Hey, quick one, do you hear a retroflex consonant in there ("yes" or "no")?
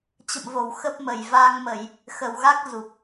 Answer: no